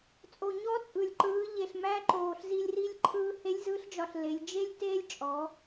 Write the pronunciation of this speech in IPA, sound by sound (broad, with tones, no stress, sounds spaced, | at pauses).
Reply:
t͡sʼ o˩ ɲ ɔ˧˥ t͡sʼ ɯ˩ lʲ ǃ ɯː˩˧ ʎ e˩ ɬ m æ˧ ǃ oː˩ ɬ z i˧ lʲ r i˧ lʲ ǃʰ ɯː˧ h e˧˥ lʲ z ɯ˧˥ ɬ d͡ʒ ɒ˧ ɬ l e˩˧ lʲ d͡ʒ e˥ lʲ t eː˥ lʲ t͡ʃʼ ɔ˩˧